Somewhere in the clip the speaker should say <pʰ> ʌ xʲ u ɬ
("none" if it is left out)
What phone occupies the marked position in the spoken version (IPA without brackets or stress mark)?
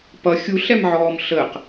p